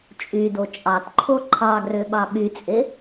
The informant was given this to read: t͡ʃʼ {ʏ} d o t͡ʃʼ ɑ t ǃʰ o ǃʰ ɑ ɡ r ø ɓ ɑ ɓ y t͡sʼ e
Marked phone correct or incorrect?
incorrect